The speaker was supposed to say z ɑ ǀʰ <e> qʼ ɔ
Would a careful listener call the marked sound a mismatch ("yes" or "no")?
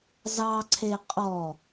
no